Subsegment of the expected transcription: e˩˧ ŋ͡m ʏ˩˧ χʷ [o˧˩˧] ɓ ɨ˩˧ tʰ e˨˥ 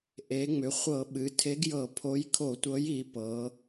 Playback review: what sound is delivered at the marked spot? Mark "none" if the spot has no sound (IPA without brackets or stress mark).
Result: ɤ˧˩˧